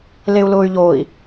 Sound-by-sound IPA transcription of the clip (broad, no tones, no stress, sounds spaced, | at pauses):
l e u̯ l ʊː y̯ ʎ oː i̯